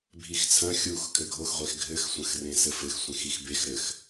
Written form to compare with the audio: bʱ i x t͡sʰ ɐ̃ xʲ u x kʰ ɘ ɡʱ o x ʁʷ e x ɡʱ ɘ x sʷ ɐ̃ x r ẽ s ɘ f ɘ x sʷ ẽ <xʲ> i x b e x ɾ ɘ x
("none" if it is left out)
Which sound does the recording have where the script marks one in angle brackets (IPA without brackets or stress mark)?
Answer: x